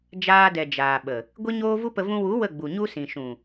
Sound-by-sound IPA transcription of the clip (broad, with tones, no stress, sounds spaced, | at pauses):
d͡ʒ aː˧ d ɛ˨ d͡ʒ aː˨ ɓ ə˨ | ɡʷ i˦ ɲ oː˦ v u˦ p ə˧ v ũ˧ w u˨˦ w ə˦˨ ɡ͡b u˨ ɲ u˦ s ĩ˨ ʃ ũ˨